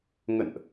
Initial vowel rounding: unrounded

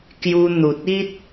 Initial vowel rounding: rounded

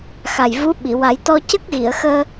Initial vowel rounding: unrounded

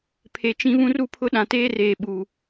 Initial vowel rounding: unrounded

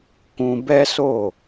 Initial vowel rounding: rounded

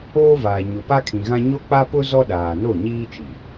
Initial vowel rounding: rounded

